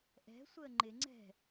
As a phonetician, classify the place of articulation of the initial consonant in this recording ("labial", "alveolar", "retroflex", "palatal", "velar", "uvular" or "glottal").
glottal